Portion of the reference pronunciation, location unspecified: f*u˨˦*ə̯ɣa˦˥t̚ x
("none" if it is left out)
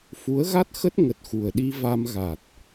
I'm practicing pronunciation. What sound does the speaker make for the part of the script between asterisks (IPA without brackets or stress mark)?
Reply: u˨˦